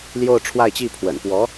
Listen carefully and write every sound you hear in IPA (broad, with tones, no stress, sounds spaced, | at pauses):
l j o˥˧ ʊ̯ ʈ͡ʂʰ w a˥˧ ɪ̯ t͡ɕ i˥˩ pʰ w ə̰˨˩ n p w ɔ˧˥